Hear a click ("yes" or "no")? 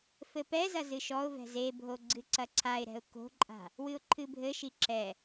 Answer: yes